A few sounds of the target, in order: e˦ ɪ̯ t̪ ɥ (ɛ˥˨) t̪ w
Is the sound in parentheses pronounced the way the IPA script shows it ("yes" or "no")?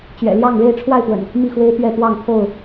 yes